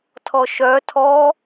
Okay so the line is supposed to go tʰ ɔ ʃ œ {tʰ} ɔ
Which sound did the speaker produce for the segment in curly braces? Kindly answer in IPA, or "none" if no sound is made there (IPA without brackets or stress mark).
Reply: tʰ